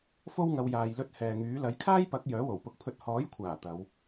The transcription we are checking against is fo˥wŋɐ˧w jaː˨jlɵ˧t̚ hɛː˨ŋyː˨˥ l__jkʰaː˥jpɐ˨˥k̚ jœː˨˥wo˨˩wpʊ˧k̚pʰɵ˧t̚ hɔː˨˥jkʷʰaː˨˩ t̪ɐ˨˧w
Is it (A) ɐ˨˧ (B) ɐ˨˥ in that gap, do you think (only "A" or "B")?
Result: B